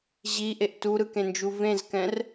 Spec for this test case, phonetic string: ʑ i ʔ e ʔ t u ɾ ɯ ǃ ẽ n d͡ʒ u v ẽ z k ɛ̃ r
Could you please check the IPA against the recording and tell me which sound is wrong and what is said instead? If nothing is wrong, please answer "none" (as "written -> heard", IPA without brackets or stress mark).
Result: ǃ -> k